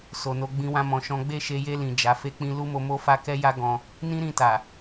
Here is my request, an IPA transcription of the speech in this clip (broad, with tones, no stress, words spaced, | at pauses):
so˨no˧ ɡ͡bĩ˦wã˦mɔ̃˧ʃɔ̃˦ ɡ͡be˦˨ʃe˧je˧lĩ˨ d͡ʒa˨˦fe˦k͡pĩ˦ lu˦mo˧mo˦fa˦ kɛ˦ja˦ ɡɔ̃˧ | nĩ˦ɾĩ˧ta˨